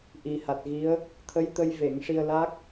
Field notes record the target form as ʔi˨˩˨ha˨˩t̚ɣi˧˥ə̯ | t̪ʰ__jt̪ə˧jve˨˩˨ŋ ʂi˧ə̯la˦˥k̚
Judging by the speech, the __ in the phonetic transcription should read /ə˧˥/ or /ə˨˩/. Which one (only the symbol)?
ə˧˥